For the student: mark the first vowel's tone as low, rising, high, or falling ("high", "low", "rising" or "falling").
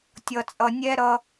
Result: low